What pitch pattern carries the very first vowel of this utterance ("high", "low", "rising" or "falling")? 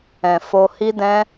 low